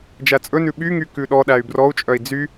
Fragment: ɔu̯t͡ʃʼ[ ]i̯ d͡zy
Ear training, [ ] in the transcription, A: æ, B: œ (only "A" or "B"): B